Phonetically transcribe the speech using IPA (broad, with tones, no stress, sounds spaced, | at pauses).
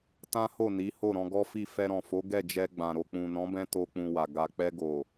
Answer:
t ã˦ h o˦˨ n i˨˦ h o˦˨ ɾ ɔ̃˧ ɡ ɔ˦ f i˦˨ f ɛ˧ ɾ ɔ̃˨ f o˨˦ ɡ ɛ˦˨ d͡ʒ ɛ˧ ɡ͡b ã˨ ɾ o˨ k͡p ũ˨ n ɔ̃˨˦ b ɛ̃˧ t o˦ k͡p ũ˧ w a˨ ɡ a˨ k͡p ɛ˧ ɡ o˨